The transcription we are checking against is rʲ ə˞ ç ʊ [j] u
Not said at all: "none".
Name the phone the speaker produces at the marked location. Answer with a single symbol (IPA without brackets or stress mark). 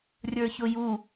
j